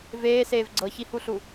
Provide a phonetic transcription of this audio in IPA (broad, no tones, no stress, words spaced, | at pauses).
veːseːv ɡ͡ǀɤçihuɬu